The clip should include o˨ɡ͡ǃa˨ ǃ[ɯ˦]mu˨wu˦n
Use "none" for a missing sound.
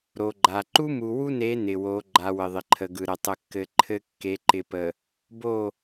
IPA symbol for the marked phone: u˦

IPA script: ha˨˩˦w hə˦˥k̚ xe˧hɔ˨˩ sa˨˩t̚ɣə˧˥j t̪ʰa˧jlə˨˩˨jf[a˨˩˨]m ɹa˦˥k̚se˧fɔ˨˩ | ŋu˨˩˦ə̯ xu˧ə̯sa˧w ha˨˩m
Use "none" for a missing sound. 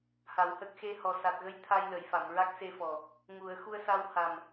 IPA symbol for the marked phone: a˨˩˨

